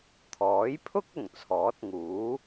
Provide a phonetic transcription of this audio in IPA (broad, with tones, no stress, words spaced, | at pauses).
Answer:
t̪ʰɔː˨˥jpʰʊ˥k̚ ʊ˨˩ŋt͡sʰɔː˨˥t̚ŋuː˨˥